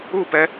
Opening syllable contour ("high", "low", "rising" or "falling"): falling